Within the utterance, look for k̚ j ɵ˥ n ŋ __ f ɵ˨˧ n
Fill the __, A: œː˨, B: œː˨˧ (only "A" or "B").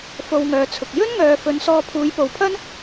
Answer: A